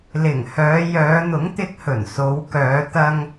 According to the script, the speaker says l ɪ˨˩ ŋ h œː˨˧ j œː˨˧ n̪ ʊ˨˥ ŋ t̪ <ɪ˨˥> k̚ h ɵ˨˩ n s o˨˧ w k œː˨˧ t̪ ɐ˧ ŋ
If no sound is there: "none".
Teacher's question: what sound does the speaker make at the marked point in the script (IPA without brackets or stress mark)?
ɪ˧